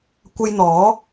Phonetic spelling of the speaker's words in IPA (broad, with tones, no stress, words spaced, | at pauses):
kʷɐ˧jn̪ɔː˨˥